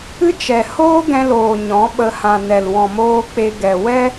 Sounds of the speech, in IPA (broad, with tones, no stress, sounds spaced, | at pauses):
ɨ˦ t͡ʃ ɛ˨ h oː˦ ɡ ɛ̃˧ l oː˨ ɲ ɔ̃˨˦ ɓ ə˧ h ã˨ n ɛ˨ l w ɔ̃˨ m oː˧ k͡p e˧ ɡ ɛ˨ w ɛ˦